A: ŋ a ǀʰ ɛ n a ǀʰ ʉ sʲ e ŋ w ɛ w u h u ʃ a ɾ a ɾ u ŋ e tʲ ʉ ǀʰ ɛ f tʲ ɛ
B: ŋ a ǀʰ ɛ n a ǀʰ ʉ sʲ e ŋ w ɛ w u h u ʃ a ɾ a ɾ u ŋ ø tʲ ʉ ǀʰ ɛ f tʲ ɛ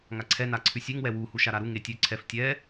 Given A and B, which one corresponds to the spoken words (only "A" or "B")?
A